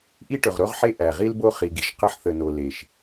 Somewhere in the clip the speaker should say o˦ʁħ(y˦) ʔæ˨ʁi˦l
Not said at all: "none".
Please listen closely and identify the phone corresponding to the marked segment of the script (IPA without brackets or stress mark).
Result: e˦